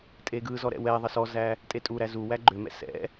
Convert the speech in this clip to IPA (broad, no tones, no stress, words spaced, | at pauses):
tʼeɡɯzɔ ɾɛ̰wɛðˤə sɔzæ | tʼetʼuɾæ zu wæɡ͡ǃʏmɛ̰ sɛ̰